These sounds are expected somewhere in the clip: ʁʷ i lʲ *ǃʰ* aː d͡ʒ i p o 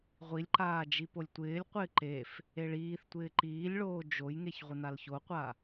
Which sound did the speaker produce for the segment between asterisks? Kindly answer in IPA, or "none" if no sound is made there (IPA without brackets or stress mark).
ǃ